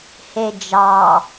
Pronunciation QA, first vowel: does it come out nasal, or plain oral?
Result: oral